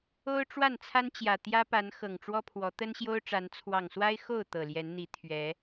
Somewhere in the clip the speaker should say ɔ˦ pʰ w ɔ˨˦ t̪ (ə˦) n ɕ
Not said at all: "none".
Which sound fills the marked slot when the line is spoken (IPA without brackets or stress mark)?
ə˦